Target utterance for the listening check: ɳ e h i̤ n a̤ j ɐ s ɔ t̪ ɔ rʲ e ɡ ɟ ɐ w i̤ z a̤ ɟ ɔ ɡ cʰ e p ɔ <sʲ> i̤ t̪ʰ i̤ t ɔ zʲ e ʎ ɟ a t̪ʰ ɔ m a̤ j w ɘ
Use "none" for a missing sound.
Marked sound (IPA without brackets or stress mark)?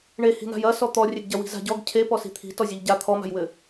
s